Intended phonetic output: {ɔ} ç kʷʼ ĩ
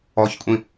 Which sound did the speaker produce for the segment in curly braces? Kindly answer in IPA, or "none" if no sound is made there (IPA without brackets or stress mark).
ɔ